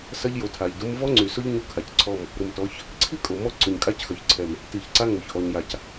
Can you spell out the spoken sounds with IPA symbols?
s ɐ˦ ʎ j o˨ tʰ a˨ ʎ d ʊ˦ m v ɔ˦ ŋ͡ǀ y˨ s ʊ˦ ʎ ɲ o˦ kʰ a˨ c ǀʰ ɔ˦˨ m | ɾ ʊ˨ m t ɔ˨˦ ç | ǀʰ i˦ kʼ o˨ m ɔ˦ ǀ ʊ˨ ɲ kʼ a˦ c x œ˨ ç ǀʰ ɛ˨ m | t i˨ ç ǀ a˦ ŋ o˨ ç ʔ ɔ˨ ɲ j a˨ c

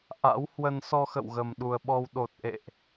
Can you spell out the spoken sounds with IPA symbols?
ʔ a̰˧˥ w h w ə˧ n s ɔ˧ x ə̰˧˨ w ɣ ə˨˩ m ɗ u˨˩ ə̯ ɓ ɔ˧ w ɗ o˨˩ t̚ ʔ ḛ˧˨ ʔ

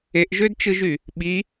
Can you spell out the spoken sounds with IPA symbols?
e ʔ ʒ ø d t͡ʃ ɯ ʒ y | ɓ i

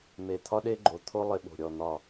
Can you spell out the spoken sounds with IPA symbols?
m e˧˩ t̪ʰ ɒ˦˥ ɗ e˦˥ ɡ͡ǃ o˧˩ t̪ʰ o˦˥ lˠ ɪ˦˥ ɓ o̤˧˩ ɾʲ ɔ˧˩ n̪ ɒ˧˩

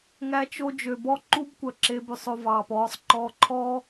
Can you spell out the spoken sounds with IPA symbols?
ŋ æ˧ t͡ʃ o˧ d͡ʒ ø˨ b ɔ˦ ǃ u˦ b kʷ œ˨ ǁ e˧ b ʉ˧ sˤ o˧ v ɑː˨ p ɔː˧ sˤ ǃ ɔː˧ ǃʰ ɔː˦

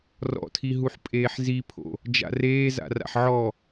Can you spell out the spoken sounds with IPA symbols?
r ɔ̰ tʰ i ɦ u ħ pʼ eː ħ z i pʰ o̰ | d͡ʒ a̰ r eː z a̰ r a̰ ħ ʕ ɔ

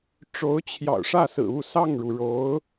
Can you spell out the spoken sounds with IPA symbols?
ʈ͡ʂ o˧˥ ʊ̯ t͡ɕʰ j ɑ̰˨˩ ʊ̯ ʂ ä˥˩ s ɹ̩˨˩ u˥˧ s ɑ˥˩ ŋ ɻ u˩ ɻ o˧˥ ʊ̯

